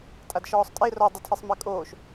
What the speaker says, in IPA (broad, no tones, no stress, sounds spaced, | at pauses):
tʼ a d ʃ ɔː sˤ tʼ e r ɔ dˤ o tʰ e sˤ m e kʼ oː ʃ